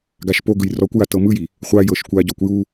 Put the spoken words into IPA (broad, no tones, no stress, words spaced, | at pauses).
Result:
ɡaʃpo ɡɯjrɔkʷja tɤmɯji | χʷajɤʃkʷa ɟɔkʷju